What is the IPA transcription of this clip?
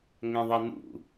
ŋ ɛ̃ ðˤ ɛ n ṵ

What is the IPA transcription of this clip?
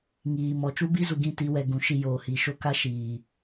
ŋ iː˨ m ɔ˨ t͡ʃ u˦ b i˦ z u˨ ɡ ĩ˦˨ t i˨˦ w ɛ˨ ɡ ũ˨ ʃ i˦˨ j oː˨ h i˨ ʃ o˦ k a˦ ʃ iː˨

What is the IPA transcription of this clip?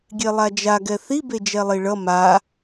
ɡʲ e lˠ a d͡ʒ a ɡ ɛ θ i b e d͡ʒ ɛ lˠ i ɭ ʌ m a

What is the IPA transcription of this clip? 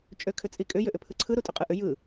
t͡ʃʼ ø kʰ ʏ t͡sʼ i kʼ ʏ j ʏ ʔ ʏ pʰ ɯ ǀʰ ɯ ɾ u tʼ ʏ qʼ ɯ ʔ ʏ j ɯ

